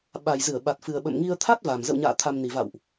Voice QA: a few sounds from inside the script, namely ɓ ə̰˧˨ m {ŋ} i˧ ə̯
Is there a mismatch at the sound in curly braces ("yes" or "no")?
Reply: no